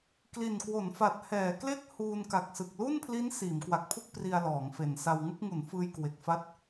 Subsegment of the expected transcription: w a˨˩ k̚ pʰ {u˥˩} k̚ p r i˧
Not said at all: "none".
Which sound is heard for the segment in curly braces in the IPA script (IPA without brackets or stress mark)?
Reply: u˥˩